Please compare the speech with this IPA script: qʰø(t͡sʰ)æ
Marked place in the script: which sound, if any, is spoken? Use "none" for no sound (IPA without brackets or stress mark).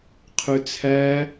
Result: t͡sʰ